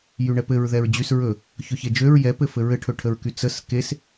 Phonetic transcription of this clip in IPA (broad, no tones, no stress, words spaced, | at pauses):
jyɳɛpɘɹ ðɛɹd͡ʑys ɹɵ | çɵçed͡ʒøɹ jɛpɘfɘ ɹɘʈʰɵʈʰəɹky t͡səs kes